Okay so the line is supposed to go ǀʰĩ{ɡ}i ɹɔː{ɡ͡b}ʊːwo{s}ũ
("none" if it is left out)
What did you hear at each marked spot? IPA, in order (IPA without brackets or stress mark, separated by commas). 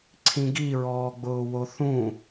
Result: ɡ, ɡ͡b, θ